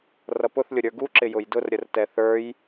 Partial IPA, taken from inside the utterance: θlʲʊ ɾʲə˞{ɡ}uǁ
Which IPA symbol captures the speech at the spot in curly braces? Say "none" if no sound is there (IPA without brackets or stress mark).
ɡ